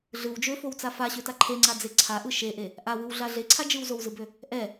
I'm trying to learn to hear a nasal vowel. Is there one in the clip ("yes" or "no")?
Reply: no